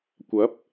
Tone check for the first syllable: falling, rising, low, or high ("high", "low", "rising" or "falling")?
rising